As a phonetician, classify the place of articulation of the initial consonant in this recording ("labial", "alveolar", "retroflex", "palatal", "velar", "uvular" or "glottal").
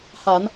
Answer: glottal